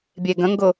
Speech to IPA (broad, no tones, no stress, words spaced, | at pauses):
bʲeɡə̃ŋɡʊ